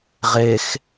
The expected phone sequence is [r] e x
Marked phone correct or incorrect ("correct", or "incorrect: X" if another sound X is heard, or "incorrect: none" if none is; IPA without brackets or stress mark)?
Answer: incorrect: ʁ